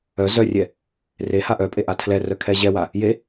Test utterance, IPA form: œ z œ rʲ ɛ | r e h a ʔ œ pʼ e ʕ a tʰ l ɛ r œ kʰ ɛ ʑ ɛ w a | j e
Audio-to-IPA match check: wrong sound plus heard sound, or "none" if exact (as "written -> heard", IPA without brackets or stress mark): ʕ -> ʔ